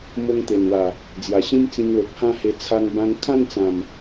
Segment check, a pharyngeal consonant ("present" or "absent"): absent